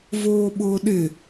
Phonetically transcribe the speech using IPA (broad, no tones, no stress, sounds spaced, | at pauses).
v oː ɓ ʊː ɗ ɪ